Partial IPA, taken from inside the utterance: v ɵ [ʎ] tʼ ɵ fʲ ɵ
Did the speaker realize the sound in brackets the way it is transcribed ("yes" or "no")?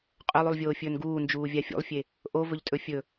yes